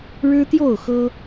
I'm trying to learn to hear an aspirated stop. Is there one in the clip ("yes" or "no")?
no